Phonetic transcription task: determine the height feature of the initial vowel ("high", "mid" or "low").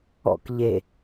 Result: mid